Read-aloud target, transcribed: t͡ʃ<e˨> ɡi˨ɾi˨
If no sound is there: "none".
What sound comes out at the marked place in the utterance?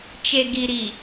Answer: e˨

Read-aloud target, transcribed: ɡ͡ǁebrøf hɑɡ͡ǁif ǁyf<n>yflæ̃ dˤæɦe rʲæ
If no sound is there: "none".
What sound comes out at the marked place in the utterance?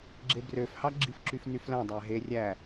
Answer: n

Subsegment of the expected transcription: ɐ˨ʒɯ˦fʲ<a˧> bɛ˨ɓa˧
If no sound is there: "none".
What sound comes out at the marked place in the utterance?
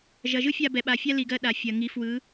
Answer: a˧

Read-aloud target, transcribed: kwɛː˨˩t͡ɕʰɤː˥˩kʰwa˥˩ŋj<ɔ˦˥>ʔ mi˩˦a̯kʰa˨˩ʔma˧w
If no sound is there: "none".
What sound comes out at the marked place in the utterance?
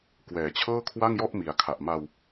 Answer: ɔ˥˩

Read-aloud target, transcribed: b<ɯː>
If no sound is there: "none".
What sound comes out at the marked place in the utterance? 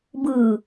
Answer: ɯː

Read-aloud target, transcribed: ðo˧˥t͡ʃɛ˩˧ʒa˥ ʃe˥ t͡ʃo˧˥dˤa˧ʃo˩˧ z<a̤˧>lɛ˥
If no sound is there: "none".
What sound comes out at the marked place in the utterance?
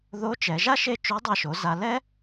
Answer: a˧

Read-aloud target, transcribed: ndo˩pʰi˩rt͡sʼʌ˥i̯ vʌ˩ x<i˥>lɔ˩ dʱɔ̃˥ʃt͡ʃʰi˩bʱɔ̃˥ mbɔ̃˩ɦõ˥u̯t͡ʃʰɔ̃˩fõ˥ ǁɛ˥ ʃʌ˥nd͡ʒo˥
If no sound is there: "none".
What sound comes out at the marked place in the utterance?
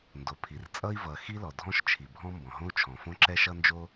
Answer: i˥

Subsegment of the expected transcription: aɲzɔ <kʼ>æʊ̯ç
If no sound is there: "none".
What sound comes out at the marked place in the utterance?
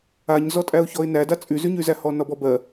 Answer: tʼ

